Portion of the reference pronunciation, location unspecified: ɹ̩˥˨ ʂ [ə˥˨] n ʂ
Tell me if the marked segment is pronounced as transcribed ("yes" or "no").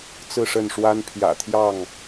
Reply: yes